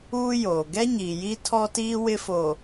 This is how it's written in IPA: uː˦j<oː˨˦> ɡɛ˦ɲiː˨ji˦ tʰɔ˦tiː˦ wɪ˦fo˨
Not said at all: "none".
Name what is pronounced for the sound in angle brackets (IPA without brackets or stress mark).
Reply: oː˨